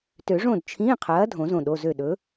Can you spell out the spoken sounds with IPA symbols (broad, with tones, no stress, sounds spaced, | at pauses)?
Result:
t ø˨˩˦ ʐ õ˥˩ d t͡ʃʰ ĩ˧˥˧ qʰ ɐː˨˥ dʱ õ˨˩˦ z õ˧˩ ɗ o˩˧˩ z ø˧˩ ɗ ɵ˨˥